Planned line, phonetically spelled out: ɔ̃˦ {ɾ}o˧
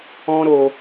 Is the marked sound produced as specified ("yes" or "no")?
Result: yes